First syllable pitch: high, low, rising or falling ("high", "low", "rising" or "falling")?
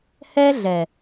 high